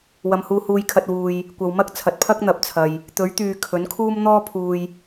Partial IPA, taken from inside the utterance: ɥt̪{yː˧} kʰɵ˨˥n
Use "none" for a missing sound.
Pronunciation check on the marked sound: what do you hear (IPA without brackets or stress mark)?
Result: yː˨